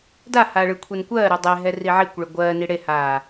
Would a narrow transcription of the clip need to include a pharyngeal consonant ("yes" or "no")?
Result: yes